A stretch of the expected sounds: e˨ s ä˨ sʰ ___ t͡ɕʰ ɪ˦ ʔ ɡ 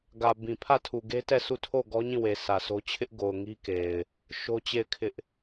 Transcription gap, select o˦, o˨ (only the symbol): o˦